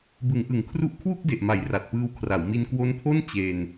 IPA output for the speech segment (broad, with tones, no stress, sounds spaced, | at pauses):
b ɯ˩˦ ŋ ʔ ɯ˩˦ ŋ kʰ r u˦˥ ʔ kʰ w u˥˩ k̚ d e˨˩ ʔ m a˩˦ j r a˨˩ t̚ p ɯː˧ w kʰ r a˩˦ w m i˧ n k w o˦˥ n pʰ o˥˩ n t͡ɕ e˧ n